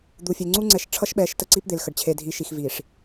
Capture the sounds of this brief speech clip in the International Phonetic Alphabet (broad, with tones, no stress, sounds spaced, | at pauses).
d̪ u˨ fʲ e˨ ŋ͡ǀ u˦ ŋ͡ǀ ɛ˨˦ ʃ ʈ͡ʂʰ ʌ˦ ʃ ɓ ɛ˨˦ ʃ t ə˦ ǀ i˦ p d̪ e˨ l x ə˨ ɖ t͡ɕʰ e˨ dʱ i˨ ʃ i˨ x v i˨ ʂ